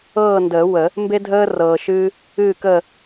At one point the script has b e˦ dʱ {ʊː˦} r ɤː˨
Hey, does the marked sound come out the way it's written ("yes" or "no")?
no